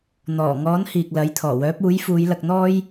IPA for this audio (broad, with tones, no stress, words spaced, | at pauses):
n̪ɔː˨˩ŋɔː˨˥n hiː˨k̚lɐ˨˥jt̪ʰɔː˨˩wœː˨˥p̚ uː˨˥j fuː˨˧jlɐ˧k̚n̪ɔː˥j